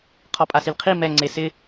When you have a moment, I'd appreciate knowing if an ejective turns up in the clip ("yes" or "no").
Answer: yes